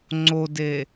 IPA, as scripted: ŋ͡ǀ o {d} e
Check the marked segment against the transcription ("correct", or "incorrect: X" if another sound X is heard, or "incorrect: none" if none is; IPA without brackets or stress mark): correct